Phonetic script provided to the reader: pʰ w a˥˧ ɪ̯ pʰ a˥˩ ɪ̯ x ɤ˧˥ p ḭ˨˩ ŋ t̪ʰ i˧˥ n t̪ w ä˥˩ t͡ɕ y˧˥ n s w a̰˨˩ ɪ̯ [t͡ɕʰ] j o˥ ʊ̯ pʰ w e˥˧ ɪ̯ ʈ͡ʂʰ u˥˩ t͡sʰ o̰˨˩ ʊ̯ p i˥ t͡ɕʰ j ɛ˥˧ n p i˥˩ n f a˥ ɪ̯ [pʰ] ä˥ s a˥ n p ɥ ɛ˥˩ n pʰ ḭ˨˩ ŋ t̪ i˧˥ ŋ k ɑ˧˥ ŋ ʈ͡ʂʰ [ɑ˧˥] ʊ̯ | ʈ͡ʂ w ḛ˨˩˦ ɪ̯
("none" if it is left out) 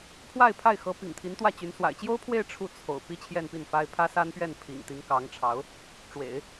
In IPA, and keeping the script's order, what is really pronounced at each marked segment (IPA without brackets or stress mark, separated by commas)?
t͡ɕ, pʰ, ɑ˧˥